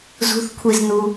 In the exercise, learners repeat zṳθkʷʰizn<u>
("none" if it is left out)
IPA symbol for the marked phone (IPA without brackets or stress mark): u